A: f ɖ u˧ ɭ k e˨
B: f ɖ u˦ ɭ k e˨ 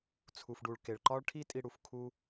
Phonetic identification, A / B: A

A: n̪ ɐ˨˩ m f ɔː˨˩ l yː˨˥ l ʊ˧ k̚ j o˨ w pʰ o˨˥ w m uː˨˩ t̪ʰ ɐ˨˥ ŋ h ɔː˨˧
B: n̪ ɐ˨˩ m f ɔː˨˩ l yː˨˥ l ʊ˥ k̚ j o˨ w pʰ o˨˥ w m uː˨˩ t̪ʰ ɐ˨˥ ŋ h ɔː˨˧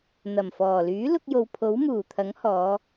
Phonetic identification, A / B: A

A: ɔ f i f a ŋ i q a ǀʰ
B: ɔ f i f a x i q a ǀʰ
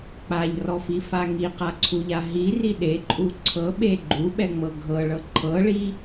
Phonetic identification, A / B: A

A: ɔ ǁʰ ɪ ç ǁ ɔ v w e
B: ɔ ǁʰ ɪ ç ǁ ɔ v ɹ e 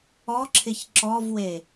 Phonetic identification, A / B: A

